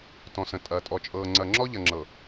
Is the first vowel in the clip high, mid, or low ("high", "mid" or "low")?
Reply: mid